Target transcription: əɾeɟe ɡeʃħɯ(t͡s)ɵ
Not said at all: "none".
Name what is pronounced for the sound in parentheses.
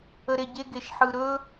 ɾ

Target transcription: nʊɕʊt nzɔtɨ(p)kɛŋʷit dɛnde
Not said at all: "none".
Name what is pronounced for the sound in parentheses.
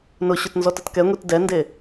t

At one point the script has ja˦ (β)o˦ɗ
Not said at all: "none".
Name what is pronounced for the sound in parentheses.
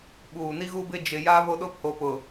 β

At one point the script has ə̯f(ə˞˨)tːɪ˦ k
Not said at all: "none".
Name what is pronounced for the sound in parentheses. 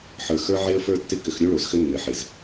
ə˞˦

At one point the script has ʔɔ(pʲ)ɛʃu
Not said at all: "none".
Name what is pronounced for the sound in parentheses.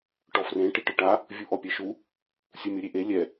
pʲ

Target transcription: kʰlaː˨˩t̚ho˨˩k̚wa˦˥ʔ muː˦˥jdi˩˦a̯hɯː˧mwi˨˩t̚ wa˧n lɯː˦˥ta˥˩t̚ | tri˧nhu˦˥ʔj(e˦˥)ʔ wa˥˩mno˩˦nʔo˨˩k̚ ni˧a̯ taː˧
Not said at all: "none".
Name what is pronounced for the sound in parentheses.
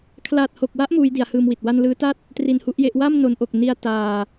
e˦˥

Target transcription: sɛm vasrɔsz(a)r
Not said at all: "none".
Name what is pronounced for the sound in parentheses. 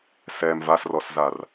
a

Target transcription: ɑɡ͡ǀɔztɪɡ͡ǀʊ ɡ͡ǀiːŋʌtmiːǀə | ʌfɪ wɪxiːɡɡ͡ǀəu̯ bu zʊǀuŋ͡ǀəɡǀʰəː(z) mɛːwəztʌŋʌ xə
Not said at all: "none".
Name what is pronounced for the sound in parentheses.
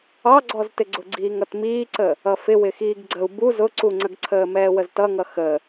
none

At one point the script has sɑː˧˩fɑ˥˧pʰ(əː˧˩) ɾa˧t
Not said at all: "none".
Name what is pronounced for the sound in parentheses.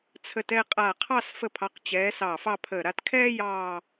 əː˧˩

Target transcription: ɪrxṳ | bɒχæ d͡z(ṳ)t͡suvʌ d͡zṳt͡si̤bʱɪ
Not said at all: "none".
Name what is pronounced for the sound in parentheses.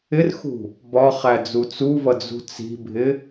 u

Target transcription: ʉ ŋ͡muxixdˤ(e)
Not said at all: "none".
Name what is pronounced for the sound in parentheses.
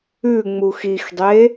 e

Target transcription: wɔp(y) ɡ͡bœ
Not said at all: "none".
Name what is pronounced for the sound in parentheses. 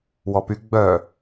y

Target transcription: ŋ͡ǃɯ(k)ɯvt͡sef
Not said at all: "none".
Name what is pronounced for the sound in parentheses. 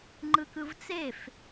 k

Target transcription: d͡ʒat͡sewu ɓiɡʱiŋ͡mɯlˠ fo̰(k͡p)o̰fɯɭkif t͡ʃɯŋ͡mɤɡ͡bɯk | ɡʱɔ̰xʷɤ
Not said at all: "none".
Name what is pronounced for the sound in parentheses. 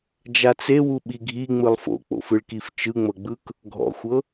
k͡p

